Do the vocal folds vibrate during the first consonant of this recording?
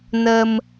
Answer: yes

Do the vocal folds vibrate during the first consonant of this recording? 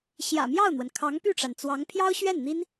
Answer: no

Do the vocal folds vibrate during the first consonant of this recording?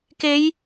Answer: no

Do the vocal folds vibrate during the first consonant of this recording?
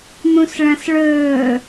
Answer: yes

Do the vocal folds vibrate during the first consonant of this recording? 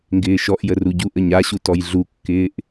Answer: yes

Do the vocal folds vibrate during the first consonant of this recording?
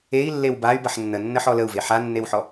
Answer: yes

